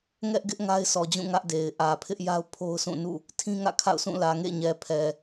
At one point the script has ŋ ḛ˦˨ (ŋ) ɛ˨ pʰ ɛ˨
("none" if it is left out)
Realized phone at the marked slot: ɲ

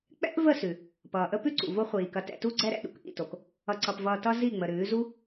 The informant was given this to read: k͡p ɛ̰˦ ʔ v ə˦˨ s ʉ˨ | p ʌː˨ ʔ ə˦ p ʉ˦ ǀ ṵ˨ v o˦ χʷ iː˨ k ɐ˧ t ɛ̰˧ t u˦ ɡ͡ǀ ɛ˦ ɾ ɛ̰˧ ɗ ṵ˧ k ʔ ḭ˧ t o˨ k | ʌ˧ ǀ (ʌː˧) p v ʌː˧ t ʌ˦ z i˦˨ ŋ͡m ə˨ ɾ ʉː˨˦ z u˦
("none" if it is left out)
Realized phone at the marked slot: ʌ˧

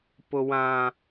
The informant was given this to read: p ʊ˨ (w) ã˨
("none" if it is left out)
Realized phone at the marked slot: w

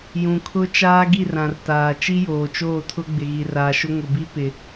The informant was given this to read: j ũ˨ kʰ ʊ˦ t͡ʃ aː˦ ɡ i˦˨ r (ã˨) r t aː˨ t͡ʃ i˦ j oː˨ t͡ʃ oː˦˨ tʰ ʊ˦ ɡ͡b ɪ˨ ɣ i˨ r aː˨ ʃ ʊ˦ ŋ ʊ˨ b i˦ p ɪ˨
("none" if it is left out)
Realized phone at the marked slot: ã˨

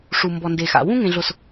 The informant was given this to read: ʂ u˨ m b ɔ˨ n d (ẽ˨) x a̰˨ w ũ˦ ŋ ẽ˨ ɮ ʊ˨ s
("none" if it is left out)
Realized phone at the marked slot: e˨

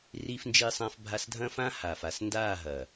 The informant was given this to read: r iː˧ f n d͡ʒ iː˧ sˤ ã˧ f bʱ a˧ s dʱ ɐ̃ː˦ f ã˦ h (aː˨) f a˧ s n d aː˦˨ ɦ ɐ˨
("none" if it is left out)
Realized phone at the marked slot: aː˨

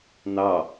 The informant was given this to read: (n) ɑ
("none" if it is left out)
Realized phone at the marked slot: n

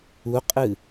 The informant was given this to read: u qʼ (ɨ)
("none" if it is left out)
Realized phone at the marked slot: ɨ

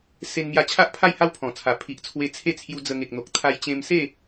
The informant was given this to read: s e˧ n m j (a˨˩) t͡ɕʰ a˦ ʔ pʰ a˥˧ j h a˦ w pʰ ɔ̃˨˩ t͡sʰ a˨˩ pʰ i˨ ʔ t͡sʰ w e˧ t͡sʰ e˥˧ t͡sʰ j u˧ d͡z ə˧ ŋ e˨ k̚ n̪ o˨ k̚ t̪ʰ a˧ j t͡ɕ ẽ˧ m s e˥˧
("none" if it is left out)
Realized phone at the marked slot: a˧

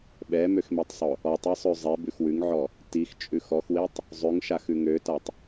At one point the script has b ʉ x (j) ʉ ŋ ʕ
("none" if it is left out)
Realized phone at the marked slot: w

